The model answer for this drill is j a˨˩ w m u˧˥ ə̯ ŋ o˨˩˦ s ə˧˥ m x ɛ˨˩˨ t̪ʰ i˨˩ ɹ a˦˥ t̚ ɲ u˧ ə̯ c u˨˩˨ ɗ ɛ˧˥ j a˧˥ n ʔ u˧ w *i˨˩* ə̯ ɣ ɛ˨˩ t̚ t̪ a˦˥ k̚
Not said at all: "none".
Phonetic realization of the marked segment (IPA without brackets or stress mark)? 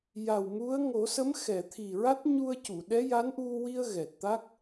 i˧